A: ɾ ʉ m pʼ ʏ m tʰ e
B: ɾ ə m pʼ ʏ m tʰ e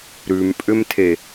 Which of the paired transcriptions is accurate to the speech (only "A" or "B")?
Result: A